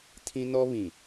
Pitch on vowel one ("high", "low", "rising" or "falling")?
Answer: high